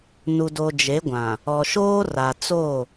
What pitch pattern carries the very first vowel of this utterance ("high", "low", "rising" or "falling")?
low